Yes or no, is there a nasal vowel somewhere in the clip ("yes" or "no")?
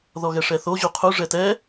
no